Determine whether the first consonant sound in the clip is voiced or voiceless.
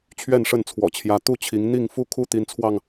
voiceless